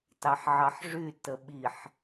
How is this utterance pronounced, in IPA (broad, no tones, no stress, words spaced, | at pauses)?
tɑħʕɑħʐy təɓiħ